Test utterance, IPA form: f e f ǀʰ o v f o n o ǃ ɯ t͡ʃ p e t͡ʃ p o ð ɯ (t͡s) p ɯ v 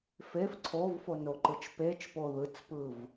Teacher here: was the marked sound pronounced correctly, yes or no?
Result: yes